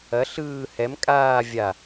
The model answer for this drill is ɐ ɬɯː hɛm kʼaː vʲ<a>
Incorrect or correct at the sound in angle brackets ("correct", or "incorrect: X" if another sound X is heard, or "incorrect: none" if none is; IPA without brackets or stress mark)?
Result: correct